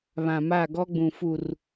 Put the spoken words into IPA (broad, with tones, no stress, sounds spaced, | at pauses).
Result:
β ã˨ m a˦˨ ɡ ɔ˦ ɡ͡b ũ˨ f u˦˨ r